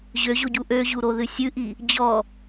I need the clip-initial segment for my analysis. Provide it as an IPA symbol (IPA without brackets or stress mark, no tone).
ʑ